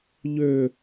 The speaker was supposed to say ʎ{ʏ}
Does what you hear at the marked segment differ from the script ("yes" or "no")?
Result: no